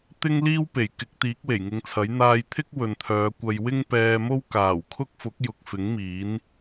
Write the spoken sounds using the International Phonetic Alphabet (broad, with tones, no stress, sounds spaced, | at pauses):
t̪ ɪ˥ ŋ l iː˥ w p e˨˩ j k ɪ˨˥ k̚ t̪ iː˨˥ k̚ w e˨˩ j ŋ ɪ˨˧ ŋ t͡sʰ ɐ˨˥ j n̪ aː˧ j t̪ʰ ɪ˥ k̚ w ɵ˨ n t̪ʰ œː˨˧ kʷ ɐ˧ j w ɪ˥ ŋ p ɛː˧ m o˥ w k aː˨˩ w kʰ ʊ˥ k̚ f ʊ˨˥ k̚ j ʊ˨ k̚ f ɪ˨˥ ŋ m iː˨˥ n